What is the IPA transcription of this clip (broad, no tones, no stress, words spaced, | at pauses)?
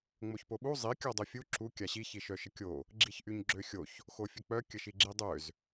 ŋ͡moçpoɓu zˤi kʲɔdˤøfʲu ǁu kʲaɕi çiʃœʃəkʲo | ɡ͡ǁiçʔyɲɡ͡ǁøxʲoç | xofʲək͡pœ kʲəʃiɡ͡ǁidˤøz